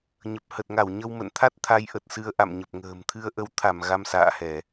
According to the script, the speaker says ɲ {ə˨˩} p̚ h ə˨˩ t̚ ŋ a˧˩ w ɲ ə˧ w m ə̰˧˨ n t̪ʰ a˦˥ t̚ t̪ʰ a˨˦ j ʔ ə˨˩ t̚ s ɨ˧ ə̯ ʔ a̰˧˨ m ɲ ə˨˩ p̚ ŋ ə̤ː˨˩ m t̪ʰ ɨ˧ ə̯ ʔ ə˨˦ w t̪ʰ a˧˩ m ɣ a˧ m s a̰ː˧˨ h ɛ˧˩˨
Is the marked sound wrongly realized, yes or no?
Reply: no